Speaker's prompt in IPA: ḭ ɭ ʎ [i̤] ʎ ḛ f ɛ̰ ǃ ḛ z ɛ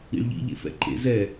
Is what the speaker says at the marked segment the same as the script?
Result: no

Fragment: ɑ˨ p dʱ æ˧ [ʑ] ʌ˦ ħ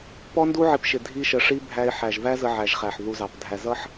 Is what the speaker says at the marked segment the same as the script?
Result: no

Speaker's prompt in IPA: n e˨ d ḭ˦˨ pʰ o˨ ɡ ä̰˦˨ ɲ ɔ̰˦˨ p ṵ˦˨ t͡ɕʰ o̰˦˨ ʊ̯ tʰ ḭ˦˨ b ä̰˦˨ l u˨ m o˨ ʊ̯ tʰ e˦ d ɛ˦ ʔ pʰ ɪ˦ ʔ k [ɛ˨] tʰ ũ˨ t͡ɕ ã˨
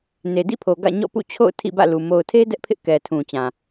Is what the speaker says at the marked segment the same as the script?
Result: yes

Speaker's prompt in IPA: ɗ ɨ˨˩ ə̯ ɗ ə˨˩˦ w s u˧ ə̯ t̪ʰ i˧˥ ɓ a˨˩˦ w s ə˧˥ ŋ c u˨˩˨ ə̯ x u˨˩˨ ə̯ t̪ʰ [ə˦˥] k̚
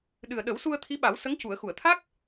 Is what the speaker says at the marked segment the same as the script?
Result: no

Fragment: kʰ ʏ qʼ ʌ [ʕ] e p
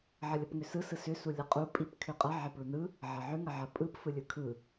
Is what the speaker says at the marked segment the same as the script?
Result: yes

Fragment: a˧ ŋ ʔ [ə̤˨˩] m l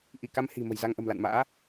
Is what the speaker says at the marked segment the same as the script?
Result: yes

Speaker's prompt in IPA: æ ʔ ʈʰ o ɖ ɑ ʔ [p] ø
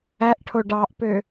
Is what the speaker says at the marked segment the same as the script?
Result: yes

